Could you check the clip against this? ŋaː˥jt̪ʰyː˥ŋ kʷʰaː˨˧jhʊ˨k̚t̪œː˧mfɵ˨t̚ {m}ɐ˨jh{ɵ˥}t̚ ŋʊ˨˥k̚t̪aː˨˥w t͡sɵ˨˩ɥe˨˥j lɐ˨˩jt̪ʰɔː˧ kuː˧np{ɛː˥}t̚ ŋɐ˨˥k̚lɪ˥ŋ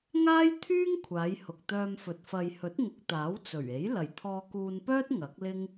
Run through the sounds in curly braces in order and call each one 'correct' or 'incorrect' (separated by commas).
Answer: incorrect, incorrect, incorrect